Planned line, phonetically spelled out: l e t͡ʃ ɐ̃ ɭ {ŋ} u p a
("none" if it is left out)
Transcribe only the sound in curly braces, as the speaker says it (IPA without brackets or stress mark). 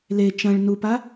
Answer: n